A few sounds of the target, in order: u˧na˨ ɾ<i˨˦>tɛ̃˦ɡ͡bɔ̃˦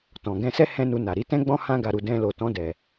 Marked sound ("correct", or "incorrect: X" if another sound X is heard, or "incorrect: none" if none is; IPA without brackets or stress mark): correct